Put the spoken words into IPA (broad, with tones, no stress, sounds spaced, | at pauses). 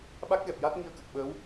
ɓ a˦˥ k̚ ɣ ɛ˨˩ p̚ j a˦˥ t̚ ŋ i˧ ə̯ k ə˨˩ k̚ ɓ əː˧˥ w